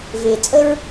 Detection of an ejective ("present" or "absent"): present